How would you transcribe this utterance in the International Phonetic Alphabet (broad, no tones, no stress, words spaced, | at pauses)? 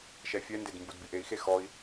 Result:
ʃɛfʲɛnded mbudbiʔei̯xe xɔi̯